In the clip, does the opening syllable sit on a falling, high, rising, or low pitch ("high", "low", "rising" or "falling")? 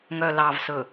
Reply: low